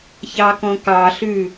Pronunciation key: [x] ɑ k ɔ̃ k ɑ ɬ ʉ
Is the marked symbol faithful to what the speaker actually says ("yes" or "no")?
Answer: no